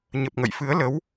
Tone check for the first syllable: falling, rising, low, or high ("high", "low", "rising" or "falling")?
low